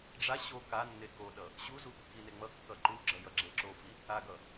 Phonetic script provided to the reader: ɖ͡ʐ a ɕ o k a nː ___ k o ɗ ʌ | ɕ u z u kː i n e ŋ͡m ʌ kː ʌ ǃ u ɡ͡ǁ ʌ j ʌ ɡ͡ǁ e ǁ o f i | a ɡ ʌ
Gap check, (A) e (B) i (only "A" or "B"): A